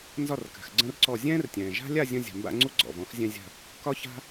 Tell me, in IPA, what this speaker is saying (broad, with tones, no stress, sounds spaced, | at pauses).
n z ɒ˥˧ r k a̤˨ x ɡ͡ǀ ə̃ː˥ r ǀ ɔ˥˧ zʲ ɛ̃ː˥ r tʲ ɛ̃ː˨ ʒ a̤˥ lʲ a˥˧ zʲ ə̃˥ zʲ a̤˨ m b a̰˥˧ ŋ͡ǀ u˥ ɡ͡ǀ ɔ̰˨ v ɔ̃˥ x zʲ ɛ̃˥ zʲ a̤˥˧ | k ɒ˥ ç a̤˥